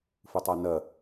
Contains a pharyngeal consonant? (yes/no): no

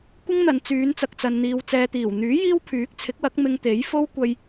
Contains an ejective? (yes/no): no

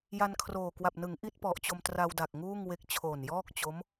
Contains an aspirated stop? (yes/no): yes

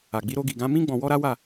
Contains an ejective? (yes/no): no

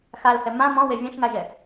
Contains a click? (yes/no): no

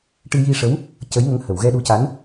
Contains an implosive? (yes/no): yes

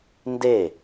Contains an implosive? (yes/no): no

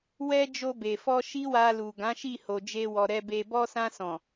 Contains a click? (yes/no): no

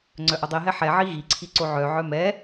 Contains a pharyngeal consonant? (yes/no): yes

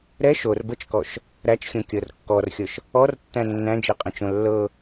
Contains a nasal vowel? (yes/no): yes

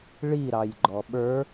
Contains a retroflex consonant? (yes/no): yes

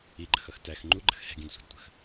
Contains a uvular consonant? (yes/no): no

